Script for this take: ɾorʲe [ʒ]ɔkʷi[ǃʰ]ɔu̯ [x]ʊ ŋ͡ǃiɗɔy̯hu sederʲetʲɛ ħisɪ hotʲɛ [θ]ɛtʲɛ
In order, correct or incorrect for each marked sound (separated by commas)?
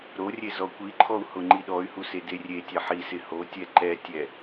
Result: incorrect, correct, incorrect, incorrect